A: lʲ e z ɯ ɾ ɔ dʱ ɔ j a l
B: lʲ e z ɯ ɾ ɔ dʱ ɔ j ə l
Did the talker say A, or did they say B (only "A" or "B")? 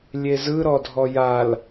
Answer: A